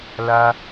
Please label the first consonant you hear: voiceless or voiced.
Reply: voiced